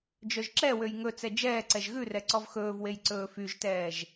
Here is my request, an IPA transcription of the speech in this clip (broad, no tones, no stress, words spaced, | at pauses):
d͡ʒœʒǁɛwøj ŋɵt͡sɛ d͡ʒɛːǀɛʒ ɣʉrɛ ǀɔvxɵːvwej ǀɵːfyʒtɛːʒ